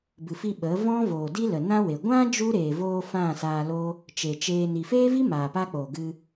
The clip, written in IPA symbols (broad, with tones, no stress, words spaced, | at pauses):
bɨ˨fi˧ ɓə˨˦ vɔ̃˦voː˨di˦ lə˨nã˦we˨ ɡʷã˦ d͡ʒu˦ɾeː˨voː˧ fã˦˨saː˧loː˦ | t͡ʃeː˨t͡ʃeː˧ ni˨feː˦vi˦ maː˨paː˦ k͡po˨ɡɨ˧